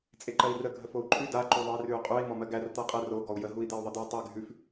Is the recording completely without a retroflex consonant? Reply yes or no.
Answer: yes